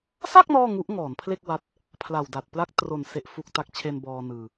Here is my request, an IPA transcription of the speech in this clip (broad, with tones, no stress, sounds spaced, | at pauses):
s a˥˩ k̚ n ɔː˥˩ ŋ u˦˥ ʔ ŋ ɔː˩˦ n pʰ l e˥˩ k̚ w a˦˥ t̚ | pʰ l a˨˩ w d a˨˩ t̚ p l a˥˩ k̚ t r o˨˩ n s e˨˩ ʔ f u˨˩ k̚ t a˦˥ k̚ t͡ɕʰ e˧ n b ɔː˧ n ɯː˧